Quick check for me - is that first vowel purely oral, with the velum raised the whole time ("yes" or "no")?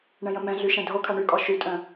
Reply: no